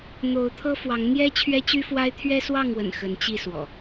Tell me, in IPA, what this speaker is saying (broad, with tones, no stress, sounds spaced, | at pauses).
n̪ o˨˦ ʊ̯ t̪ʰ ɤ˦ f w ɑ˨˦ ŋ n̪ j ɛ˦ t͡ɕʰ ɥ ɛ˦ t͡ɕ y˦ f w a˦ ɪ̯ t̪ʰ ɥ ɛ˦ s w ɑ˥˨ ŋ w ə̰˨˩ n x ə˨˦ n t͡ɕ i˥˨ s w ɔ̰˨˩